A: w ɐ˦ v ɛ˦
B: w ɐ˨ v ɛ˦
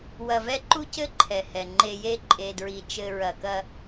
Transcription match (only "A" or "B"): B